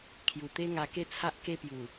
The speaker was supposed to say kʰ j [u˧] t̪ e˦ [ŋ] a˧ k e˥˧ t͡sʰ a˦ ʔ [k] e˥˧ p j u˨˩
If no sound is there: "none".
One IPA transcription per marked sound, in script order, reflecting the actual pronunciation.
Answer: u˨˩, ŋ, k

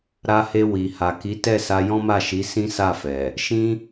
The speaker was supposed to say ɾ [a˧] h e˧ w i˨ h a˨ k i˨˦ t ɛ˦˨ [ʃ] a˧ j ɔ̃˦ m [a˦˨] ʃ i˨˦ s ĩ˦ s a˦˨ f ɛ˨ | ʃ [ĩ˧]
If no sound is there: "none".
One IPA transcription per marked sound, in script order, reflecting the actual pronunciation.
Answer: a˧, s, a˦˨, ĩ˦

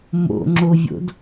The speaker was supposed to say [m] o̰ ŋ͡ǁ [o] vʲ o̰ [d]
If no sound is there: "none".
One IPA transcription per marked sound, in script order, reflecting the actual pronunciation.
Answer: m, o, d

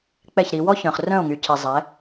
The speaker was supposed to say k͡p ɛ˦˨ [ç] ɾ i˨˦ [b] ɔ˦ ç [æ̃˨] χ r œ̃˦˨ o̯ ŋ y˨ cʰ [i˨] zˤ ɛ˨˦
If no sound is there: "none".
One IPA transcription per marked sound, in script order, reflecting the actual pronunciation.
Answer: ç, w, œ̃˨, i˨

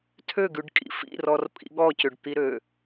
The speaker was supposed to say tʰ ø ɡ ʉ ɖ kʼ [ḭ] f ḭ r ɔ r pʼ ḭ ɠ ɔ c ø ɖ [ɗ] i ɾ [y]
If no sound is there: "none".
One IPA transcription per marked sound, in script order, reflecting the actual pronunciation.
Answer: ḭ, t̪, ø

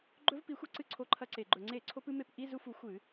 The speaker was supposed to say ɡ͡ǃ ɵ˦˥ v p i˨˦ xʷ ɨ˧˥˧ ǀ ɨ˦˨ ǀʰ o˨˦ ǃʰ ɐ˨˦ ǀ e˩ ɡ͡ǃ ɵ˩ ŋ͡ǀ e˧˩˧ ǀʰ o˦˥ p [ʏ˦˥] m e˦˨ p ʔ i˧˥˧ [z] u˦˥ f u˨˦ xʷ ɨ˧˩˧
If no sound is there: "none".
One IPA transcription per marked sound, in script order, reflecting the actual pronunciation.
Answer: ɨ˦˥, z

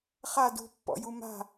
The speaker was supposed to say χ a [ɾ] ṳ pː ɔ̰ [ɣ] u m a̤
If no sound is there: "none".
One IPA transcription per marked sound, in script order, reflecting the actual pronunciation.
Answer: d, j

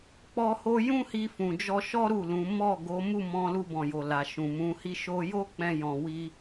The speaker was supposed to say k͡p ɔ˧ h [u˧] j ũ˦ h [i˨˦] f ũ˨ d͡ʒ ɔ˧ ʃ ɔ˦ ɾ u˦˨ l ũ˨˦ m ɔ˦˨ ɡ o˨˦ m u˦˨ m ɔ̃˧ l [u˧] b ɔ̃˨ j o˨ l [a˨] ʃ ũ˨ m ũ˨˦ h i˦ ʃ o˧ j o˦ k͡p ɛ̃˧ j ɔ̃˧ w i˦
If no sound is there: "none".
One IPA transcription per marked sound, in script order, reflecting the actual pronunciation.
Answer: o˧, i˧, u˧, a˨

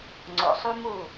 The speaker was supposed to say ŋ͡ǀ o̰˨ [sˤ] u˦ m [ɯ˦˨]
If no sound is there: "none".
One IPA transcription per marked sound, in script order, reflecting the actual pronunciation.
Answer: sˤ, u˦˨

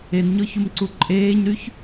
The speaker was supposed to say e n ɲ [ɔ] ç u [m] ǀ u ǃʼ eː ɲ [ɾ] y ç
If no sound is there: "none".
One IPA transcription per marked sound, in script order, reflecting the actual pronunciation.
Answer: ɔ, m, ɾ

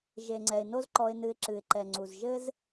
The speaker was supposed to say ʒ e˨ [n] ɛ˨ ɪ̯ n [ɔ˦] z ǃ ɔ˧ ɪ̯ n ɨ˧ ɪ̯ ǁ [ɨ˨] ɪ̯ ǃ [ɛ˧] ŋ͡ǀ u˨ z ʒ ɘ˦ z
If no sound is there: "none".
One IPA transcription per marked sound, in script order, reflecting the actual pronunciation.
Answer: ŋ͡ǀ, o˦, ɨ˨, ɛ˨

